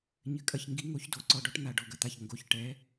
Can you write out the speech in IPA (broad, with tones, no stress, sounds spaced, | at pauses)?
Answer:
ɲ ɘ˨˥ kʼ ɐ˧ ç ŋ ɡ i˨˥ ŋ o˨˥ ç d o˩˧˩ ǀ ɔ˧ ɖ ɔ˨˥ ʈ n̪ a˧˩ ɖ ɔ˧˩ ɡ ɐ˧ t̪ a˧˩ ç ŋ ɡ o˧ ç ʈ ɛ˨˥